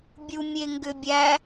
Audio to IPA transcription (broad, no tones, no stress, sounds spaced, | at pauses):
bʲ u mʲ e ŋ ɡ ʏ bʲ æ